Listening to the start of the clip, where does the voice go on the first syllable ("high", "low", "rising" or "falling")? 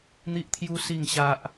high